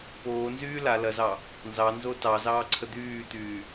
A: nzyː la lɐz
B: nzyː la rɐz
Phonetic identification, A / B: A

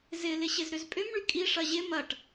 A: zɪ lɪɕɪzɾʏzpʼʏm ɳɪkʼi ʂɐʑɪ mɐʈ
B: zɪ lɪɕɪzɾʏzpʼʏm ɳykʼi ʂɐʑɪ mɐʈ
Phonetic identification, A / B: B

